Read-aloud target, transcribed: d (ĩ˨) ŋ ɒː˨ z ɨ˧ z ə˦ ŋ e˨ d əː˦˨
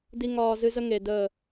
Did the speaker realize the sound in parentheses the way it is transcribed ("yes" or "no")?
no